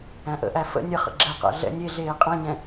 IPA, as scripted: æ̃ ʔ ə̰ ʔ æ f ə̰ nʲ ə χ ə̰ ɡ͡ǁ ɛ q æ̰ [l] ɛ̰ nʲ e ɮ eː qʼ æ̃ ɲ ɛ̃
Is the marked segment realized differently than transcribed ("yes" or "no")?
yes